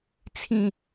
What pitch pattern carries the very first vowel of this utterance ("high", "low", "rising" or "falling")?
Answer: falling